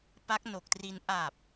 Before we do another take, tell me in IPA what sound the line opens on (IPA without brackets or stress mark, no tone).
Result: p